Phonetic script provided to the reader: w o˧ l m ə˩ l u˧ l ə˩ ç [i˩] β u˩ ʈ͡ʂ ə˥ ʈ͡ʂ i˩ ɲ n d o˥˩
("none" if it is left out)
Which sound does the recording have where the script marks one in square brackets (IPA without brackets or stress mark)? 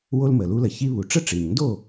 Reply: i˧